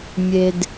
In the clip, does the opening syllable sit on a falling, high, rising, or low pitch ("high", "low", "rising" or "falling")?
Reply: low